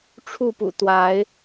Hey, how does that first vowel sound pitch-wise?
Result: falling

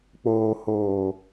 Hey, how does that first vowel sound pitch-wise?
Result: low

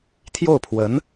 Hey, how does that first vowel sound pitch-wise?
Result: falling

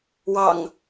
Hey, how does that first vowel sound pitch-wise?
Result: low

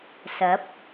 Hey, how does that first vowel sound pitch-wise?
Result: rising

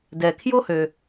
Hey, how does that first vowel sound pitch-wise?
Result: low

